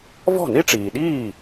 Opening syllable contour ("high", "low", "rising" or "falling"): falling